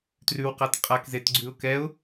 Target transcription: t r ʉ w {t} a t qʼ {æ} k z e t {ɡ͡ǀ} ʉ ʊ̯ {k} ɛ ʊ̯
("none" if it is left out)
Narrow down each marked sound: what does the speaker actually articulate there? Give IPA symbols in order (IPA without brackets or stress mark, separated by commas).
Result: q, a, ɡ͡ǀ, k